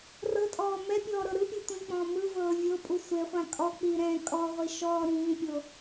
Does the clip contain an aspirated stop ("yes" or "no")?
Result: no